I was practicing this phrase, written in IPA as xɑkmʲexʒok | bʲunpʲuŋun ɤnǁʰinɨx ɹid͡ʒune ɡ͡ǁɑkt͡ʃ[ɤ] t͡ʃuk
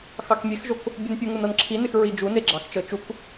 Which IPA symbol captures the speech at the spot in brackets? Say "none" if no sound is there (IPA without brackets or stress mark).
ɤ